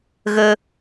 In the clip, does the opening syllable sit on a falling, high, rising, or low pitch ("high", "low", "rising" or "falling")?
high